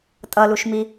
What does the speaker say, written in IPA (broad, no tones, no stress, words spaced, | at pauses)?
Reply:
tʼʌluʃmi